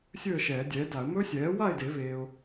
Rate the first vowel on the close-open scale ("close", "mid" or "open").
mid